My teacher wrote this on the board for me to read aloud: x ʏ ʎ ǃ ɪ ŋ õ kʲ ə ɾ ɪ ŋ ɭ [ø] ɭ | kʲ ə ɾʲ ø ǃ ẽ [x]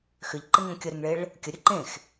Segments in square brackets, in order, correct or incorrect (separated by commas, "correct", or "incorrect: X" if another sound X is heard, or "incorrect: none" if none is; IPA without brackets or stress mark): incorrect: e, correct